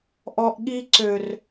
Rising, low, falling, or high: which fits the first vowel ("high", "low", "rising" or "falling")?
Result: low